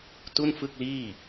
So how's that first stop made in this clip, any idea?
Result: plain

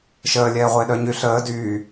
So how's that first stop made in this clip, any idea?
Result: implosive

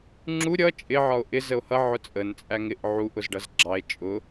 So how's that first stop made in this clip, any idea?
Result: click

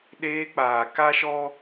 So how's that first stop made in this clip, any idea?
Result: implosive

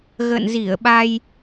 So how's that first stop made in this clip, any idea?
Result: implosive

